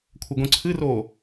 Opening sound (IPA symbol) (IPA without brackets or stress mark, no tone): kʷʰ